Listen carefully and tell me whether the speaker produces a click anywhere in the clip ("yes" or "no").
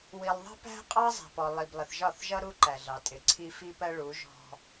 yes